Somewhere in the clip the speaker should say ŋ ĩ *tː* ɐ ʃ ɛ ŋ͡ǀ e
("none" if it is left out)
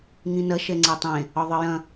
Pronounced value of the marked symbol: n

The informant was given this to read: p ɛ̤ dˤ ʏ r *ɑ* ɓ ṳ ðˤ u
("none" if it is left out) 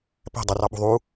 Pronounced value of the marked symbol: ɑ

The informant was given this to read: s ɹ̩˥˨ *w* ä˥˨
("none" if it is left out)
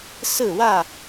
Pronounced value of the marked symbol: w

